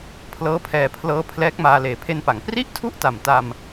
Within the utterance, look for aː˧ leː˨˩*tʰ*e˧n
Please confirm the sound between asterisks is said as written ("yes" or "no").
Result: no